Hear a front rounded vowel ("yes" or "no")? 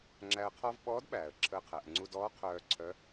yes